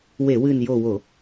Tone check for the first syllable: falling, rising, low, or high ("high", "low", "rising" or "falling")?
low